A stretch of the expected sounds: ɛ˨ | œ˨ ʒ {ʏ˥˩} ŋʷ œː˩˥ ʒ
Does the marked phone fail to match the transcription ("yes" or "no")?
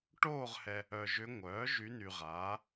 yes